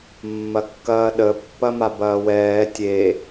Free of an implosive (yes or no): no